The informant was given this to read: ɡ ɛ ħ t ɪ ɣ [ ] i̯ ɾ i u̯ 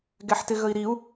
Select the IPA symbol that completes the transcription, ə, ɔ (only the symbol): ə